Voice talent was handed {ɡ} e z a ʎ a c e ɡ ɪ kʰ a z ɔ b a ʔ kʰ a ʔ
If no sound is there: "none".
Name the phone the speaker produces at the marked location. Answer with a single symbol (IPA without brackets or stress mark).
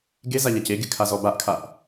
ɡ